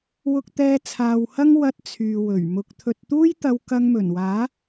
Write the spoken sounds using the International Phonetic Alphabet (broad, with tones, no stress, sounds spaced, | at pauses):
w ʊ˧ k̚ t̪ ɛː˧ t͡sʰ aː˨ w h ɐ˥ ŋ w ɐ˧ t̚ t͡sʰ yː˨ w ɵ˨˩ ɥ m ʊ˧ k̚ t̪ʰ ɵ˨ t̚ t̪ uː˥ j t̪ ɐ˧ w k ɐ˧ ŋ m ɵ˨˩ n w aː˨˥